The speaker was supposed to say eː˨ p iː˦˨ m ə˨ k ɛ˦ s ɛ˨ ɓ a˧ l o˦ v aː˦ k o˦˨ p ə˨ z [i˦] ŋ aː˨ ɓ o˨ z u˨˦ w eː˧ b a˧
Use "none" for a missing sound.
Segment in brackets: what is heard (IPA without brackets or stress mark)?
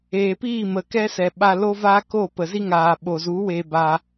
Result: i˦